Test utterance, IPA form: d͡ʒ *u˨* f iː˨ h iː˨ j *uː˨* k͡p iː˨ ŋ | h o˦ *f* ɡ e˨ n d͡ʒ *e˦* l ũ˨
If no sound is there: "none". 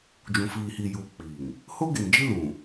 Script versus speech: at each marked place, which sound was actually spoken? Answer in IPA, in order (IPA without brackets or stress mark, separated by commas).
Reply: ũ˨, uː˨, none, i˦